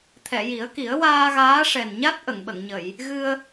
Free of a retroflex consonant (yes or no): no